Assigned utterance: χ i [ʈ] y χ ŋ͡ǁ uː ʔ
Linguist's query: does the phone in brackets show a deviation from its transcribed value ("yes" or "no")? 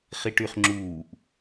no